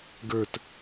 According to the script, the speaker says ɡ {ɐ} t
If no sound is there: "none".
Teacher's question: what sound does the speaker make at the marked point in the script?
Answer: ə˞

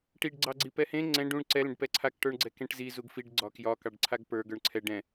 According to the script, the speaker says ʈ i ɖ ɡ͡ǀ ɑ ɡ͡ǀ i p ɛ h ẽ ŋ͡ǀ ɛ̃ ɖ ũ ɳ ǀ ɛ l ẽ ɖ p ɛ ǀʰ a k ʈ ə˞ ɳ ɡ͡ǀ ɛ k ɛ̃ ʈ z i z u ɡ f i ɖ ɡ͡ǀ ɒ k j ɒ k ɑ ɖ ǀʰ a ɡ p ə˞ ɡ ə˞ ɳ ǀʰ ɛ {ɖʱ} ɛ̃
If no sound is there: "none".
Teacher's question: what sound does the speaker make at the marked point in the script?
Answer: ɖ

